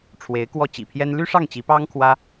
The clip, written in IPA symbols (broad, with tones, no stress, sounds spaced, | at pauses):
ʈ͡ʂʰ w e˧˥ ɪ̯ k w ɔ˥˩ t͡ɕ ḭ˨˩ pʰ j ɛ˥ n l y˥ ʂ ɑ˥˩ ŋ t͡ɕ i˧˥ p ɑ˥ ŋ kʰ w ä˥